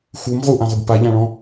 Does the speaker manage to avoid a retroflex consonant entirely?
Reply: no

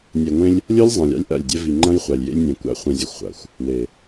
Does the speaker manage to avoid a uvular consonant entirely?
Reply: no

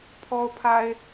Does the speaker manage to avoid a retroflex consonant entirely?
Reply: yes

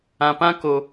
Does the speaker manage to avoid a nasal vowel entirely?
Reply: no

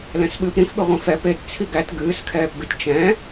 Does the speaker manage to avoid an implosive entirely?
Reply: no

